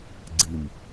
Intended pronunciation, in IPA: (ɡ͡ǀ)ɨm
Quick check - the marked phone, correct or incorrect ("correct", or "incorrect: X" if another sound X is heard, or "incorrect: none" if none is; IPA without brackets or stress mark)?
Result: correct